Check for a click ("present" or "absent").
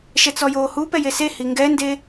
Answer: absent